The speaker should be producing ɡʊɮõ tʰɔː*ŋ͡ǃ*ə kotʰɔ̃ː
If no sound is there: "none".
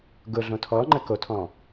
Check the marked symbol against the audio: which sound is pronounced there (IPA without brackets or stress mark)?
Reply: ŋ͡ǃ